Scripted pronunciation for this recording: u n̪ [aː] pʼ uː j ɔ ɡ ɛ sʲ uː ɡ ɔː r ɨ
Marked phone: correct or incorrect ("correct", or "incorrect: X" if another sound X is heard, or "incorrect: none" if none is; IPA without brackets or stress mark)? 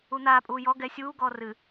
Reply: correct